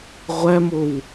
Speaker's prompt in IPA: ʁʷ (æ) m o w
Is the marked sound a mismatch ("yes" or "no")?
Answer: no